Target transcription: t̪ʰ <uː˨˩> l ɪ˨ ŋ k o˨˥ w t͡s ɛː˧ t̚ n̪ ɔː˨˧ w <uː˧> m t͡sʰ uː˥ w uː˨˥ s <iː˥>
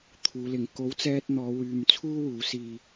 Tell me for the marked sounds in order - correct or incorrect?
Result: incorrect, incorrect, incorrect

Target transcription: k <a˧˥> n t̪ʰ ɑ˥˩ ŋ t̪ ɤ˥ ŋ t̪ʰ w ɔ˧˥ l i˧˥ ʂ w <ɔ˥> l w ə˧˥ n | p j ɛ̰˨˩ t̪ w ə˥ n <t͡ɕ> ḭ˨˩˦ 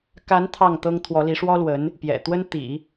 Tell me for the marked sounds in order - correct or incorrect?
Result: correct, correct, incorrect

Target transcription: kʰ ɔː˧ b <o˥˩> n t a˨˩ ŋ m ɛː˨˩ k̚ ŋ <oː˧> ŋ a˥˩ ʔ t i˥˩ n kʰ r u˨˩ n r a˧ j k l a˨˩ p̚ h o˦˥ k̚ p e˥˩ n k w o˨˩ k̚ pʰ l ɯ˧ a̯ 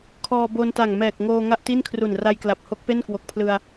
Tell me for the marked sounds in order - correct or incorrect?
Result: incorrect, correct

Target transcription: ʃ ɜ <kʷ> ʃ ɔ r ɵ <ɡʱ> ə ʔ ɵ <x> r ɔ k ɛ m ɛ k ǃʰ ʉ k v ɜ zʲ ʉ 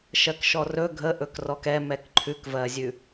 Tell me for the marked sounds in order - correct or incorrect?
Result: incorrect, correct, incorrect

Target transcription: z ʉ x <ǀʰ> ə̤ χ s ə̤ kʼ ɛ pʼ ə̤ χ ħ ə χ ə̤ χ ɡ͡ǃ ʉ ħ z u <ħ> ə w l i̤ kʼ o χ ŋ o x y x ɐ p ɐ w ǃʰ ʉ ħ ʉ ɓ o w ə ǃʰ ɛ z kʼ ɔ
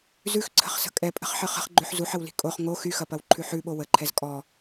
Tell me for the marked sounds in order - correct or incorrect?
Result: correct, correct

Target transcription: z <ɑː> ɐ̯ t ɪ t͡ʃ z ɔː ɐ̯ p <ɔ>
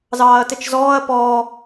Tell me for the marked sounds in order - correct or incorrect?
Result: correct, incorrect

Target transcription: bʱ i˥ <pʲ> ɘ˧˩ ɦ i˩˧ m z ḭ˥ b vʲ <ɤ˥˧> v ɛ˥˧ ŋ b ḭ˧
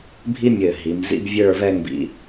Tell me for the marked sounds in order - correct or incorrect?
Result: incorrect, incorrect

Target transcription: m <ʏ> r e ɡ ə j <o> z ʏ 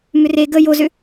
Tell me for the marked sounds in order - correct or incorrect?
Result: correct, correct

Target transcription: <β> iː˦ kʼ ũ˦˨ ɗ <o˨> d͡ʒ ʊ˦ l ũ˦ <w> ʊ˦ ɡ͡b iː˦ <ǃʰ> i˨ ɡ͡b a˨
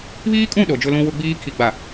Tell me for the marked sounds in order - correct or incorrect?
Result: correct, correct, correct, incorrect

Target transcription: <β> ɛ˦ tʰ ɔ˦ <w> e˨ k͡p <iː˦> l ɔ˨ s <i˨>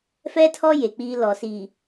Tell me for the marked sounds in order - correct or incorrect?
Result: incorrect, incorrect, correct, correct

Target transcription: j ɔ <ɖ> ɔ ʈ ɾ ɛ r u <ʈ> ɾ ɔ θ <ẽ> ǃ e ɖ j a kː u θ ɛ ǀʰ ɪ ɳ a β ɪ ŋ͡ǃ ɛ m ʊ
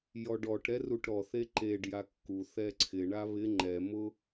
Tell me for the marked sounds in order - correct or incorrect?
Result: correct, correct, incorrect

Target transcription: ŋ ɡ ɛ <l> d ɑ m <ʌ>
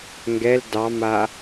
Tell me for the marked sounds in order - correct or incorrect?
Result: correct, incorrect

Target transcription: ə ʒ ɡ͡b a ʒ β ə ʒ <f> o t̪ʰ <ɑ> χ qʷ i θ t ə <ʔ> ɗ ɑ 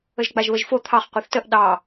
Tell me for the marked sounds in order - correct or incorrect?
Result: correct, correct, correct

